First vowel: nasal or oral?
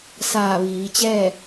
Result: oral